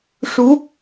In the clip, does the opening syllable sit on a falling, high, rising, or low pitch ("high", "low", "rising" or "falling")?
rising